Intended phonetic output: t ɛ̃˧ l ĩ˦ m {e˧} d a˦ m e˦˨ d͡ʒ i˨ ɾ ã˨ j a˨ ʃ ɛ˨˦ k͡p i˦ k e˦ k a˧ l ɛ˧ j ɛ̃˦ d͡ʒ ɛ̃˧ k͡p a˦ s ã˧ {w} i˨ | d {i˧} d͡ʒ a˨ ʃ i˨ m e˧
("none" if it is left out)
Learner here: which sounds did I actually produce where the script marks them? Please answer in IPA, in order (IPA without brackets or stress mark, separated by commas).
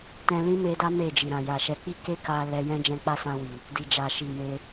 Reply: e˧, w, i˨